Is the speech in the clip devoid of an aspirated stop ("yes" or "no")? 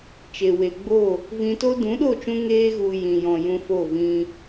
yes